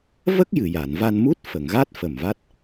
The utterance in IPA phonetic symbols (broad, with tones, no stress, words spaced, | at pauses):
və˦˥k̚ jɨ˨˩˨ja˨˩˨n va˧nmu˦˥t̚ fə˨˩˨ŋɣa˦˥t̚ fə˨˩m va˦˥t̚